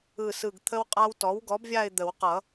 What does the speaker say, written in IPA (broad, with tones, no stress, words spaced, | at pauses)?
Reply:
ɯ˦˨sɯ˦˨ɡt̪ʰə˥wqʼa˥w tɔ˩˥wɡɔ˩˥bvʲa˦˨ɪ̯ d̪ə˨˩˦wqʌ˨˩˦